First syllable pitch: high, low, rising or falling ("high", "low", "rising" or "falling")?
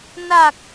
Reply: low